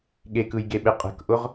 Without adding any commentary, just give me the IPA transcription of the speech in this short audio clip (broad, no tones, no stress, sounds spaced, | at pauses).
ɠ e k ɯ j ɡ e ɓ e qʼ ə̤ k ʔ ʊ ʁ